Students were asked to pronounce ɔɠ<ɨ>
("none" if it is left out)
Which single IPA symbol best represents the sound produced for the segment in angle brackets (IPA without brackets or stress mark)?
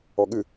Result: ɨ